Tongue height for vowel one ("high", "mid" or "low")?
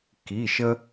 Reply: high